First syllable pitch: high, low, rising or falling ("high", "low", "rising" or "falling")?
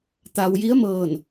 low